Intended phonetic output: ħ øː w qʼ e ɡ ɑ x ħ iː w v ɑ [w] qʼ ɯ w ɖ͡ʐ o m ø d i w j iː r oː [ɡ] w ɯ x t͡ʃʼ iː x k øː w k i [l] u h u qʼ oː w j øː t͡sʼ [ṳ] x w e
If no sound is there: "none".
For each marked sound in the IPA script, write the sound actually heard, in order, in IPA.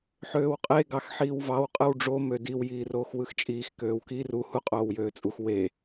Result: w, x, r, u

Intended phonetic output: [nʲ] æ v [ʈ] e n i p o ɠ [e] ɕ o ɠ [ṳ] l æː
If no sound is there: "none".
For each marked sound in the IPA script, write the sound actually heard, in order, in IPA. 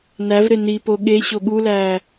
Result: n, ɾ, e, u

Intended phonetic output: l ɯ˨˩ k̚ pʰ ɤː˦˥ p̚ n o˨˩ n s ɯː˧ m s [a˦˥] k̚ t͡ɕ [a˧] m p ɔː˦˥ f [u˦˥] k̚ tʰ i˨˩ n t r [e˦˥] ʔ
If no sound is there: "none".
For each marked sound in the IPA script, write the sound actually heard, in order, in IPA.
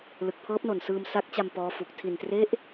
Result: a˦˥, a˧, u˨˩, e˦˥

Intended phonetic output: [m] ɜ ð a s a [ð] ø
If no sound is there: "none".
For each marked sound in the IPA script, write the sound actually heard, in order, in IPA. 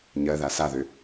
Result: ɲ, ð

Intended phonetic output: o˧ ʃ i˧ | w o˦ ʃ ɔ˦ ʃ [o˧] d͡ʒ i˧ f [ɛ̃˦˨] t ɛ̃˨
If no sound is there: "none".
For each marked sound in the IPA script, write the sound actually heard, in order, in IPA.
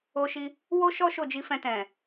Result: o˦˨, ɛ̃˧

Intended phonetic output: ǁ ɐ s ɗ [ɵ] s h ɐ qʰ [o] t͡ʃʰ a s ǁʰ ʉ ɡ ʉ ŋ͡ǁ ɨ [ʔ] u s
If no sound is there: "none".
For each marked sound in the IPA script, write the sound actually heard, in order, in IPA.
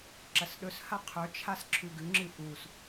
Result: ɵ, ɵ, ʔ

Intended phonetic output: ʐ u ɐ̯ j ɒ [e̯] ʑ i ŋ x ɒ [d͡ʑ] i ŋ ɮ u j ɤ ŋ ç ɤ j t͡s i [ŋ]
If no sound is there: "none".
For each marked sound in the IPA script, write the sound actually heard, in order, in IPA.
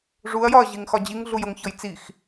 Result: ɐ̯, d͡ʑ, x

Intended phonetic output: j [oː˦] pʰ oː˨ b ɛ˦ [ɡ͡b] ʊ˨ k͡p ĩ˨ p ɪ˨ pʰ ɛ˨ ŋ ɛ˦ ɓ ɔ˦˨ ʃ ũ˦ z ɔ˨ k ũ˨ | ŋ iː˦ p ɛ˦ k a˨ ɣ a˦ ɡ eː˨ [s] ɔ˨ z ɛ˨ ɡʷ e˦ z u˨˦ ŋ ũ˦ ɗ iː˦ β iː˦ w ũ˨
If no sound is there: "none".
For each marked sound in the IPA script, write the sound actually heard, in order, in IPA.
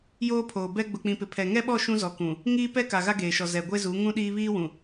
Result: oː˦, ɡ͡b, ʃ

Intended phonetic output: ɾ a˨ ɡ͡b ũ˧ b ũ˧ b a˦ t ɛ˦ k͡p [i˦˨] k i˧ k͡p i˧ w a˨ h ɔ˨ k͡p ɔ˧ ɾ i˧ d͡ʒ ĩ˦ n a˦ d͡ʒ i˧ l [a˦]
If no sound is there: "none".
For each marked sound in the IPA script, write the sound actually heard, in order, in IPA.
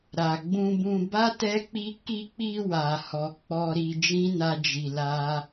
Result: i˦, a˦

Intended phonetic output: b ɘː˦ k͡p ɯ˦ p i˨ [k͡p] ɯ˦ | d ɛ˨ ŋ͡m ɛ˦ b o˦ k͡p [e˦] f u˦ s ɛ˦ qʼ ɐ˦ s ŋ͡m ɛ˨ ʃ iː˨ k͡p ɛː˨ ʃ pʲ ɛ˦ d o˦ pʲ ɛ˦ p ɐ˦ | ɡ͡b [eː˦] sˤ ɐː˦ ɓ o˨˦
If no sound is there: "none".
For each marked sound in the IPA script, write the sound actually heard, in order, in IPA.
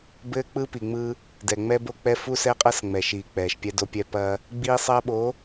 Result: ŋ͡m, ɛ˦, iː˦

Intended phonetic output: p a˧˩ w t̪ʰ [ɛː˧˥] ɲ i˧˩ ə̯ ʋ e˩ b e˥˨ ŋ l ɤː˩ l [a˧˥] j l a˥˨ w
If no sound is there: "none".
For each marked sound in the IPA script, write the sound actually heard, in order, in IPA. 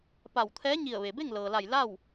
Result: ɛː˧˥, a˧˩

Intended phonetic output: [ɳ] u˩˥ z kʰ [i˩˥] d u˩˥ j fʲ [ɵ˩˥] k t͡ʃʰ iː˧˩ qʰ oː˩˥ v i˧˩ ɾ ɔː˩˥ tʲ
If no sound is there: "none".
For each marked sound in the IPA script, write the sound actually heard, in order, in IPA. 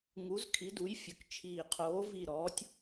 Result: ŋ, i˩˥, ɵ˩˥

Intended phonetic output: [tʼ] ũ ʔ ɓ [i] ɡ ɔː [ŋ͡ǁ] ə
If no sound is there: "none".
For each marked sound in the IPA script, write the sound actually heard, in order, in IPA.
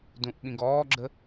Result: d, ĩ, ɡ͡ǁ

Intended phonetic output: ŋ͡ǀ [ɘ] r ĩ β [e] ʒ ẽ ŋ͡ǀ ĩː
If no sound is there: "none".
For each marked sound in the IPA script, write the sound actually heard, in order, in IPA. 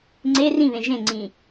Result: e, ẽ

